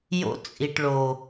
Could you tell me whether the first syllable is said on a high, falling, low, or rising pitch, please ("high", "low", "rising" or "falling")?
high